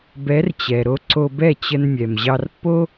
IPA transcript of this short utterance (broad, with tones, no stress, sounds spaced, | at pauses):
b ɛ˩˥ r t͡ɕ ɛ˩ ɾ o˧ ǀ o˧ b ɛ˥˩ t͡ɕ ə˧ n mʲ ɛ˩ m ʑ ɑ˧ r pː o˥